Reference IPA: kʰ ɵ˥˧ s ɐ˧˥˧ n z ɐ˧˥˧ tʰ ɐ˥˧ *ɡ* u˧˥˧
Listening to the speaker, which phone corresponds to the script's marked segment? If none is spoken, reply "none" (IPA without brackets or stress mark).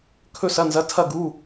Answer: ɡ